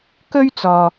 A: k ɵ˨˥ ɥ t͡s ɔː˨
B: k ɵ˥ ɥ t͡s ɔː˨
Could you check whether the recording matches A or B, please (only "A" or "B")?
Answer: B